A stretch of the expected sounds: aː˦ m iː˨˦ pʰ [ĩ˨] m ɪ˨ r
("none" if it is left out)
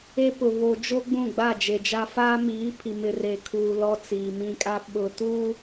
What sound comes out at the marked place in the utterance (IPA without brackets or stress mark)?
i˨